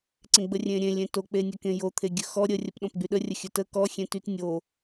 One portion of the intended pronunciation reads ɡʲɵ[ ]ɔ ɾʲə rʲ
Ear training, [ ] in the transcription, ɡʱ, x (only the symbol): x